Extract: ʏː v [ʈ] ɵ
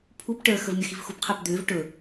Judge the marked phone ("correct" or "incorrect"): correct